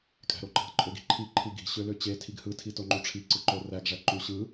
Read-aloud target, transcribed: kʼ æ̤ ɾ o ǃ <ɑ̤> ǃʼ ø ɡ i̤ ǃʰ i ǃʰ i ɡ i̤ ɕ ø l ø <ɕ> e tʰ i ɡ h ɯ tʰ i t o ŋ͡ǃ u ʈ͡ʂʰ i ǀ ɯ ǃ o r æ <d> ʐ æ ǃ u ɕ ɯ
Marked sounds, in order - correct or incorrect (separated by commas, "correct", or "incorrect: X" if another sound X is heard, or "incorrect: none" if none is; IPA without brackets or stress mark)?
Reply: correct, incorrect: t͡ɕ, incorrect: ɡ